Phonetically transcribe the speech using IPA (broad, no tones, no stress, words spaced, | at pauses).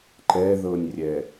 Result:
ǃɛðɤnʲrʲɛ